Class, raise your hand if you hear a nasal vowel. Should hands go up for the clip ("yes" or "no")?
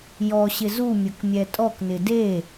no